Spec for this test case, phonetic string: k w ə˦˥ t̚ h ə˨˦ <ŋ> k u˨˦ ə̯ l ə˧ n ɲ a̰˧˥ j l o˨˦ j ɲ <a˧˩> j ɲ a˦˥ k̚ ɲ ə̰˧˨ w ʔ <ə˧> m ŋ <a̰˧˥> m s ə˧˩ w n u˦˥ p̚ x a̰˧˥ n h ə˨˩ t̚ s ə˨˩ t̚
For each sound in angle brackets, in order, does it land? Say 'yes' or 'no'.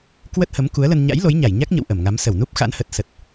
no, yes, no, no

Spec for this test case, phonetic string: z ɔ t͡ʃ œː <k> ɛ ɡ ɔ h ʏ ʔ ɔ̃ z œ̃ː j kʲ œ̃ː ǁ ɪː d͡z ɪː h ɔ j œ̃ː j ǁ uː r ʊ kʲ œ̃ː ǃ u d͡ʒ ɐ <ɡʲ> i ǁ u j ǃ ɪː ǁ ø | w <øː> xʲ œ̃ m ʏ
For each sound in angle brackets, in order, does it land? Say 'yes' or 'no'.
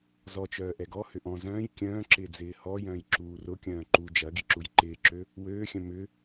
no, no, yes

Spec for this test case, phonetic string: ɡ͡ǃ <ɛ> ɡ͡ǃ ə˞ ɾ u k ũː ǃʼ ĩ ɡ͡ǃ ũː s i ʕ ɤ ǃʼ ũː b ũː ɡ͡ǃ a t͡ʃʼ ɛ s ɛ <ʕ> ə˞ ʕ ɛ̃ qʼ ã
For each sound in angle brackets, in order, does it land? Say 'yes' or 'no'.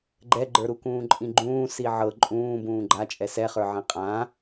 yes, no

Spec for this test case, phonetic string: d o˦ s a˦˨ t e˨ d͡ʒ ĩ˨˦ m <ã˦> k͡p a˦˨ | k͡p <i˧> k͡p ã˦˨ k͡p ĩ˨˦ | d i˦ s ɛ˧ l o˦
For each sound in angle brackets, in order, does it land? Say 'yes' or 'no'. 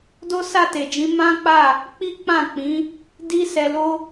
yes, no

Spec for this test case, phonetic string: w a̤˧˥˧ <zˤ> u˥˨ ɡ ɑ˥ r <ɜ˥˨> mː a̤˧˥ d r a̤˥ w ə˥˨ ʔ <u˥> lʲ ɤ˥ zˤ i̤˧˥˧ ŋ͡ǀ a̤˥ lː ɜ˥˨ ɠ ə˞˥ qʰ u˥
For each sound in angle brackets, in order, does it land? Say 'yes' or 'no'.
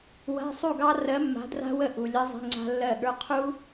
no, no, no

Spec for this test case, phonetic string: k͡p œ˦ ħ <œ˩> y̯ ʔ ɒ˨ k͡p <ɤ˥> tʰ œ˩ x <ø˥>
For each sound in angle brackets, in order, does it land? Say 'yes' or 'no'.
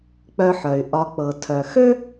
yes, no, yes

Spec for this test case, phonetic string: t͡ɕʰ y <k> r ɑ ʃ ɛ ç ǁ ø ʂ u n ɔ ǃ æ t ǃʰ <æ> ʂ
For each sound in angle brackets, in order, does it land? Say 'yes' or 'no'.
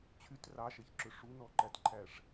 no, yes

